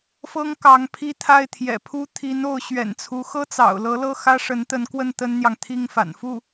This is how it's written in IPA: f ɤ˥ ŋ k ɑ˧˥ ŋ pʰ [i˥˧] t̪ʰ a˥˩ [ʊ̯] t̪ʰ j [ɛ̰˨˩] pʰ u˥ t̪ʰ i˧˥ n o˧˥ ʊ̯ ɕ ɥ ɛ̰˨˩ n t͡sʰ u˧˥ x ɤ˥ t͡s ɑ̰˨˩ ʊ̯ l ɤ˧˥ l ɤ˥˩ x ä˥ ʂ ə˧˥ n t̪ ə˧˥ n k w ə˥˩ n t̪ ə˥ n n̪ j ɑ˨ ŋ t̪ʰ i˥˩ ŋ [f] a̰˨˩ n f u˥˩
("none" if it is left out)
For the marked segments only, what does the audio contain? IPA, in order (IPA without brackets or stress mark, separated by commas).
i˥˧, ɪ̯, ɛ̰˨˩, f